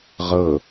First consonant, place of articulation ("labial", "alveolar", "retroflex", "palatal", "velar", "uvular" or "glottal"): uvular